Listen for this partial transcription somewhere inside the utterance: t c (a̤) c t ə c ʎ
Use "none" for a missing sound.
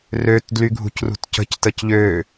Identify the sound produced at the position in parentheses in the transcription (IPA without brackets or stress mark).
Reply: ə̤